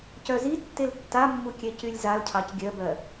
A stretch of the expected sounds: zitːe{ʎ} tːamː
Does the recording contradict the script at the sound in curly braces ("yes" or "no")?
yes